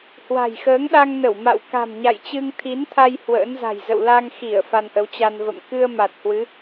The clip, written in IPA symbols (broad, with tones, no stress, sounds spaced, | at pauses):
h w a̤˨˩ j x əː˨˦ ŋ ɗ a˧ ŋ n ə˧˩ w m a̰˧˨ w k a̤˨˩ m ɲ a̰˧˨ j t͡ɕ ɨ˧ ŋ t̪ʰ i˨˦ n t̪ʰ a˧ j h w ə̰ː˧˥ n z a̤˨˩ j z ə̰˧˨ w l a˧ ŋ x i˧˩ ə̯ f a˧ n ʔ ə˨˦ w t͡ɕ a˧ n v ə̰˧˨ m k ɨ˧ ə̯ m a˨˩ t̚ h w ɨ˨˦